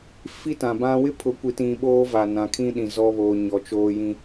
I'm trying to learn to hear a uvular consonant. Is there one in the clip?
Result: no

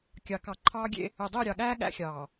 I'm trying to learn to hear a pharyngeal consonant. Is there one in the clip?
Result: no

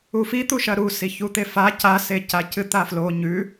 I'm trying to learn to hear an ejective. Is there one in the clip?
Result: no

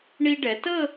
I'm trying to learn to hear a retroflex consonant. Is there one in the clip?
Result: yes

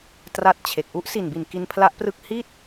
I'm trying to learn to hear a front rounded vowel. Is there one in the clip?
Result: no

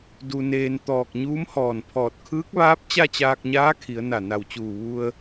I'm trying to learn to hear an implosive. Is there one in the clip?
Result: no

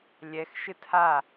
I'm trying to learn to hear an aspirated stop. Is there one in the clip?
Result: yes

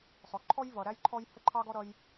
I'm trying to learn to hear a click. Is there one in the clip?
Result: yes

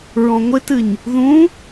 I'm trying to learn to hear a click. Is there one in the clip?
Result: no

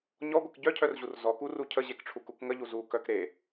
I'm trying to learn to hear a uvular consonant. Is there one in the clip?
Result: no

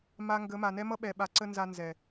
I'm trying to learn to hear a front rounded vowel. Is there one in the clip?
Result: no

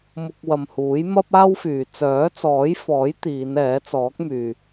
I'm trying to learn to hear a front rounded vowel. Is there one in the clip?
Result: yes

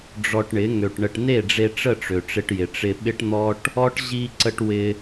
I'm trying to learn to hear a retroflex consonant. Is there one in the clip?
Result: yes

